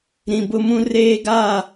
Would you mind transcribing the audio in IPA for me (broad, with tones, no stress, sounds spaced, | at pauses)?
ɾ ĩ˨ b ʊ˦ m ũ˦ r eː˦ ɡ a˦˨